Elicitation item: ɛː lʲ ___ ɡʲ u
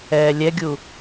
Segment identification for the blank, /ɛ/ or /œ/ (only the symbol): ɛ